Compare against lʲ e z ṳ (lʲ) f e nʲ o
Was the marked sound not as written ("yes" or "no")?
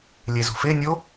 yes